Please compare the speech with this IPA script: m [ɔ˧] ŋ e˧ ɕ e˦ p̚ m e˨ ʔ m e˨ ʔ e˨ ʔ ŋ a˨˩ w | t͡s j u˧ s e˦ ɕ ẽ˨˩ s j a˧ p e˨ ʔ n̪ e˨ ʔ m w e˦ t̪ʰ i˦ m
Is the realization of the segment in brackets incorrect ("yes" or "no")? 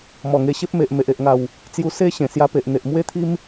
yes